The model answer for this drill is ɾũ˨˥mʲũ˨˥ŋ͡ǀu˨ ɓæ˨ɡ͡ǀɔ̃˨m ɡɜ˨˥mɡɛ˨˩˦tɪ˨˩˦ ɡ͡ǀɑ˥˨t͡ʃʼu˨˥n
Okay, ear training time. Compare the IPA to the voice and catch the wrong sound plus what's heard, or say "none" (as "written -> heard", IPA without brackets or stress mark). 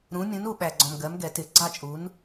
ŋ͡ǀ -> n